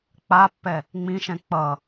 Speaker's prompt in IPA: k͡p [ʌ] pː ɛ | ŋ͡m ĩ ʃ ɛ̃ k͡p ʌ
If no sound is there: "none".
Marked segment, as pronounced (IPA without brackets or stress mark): a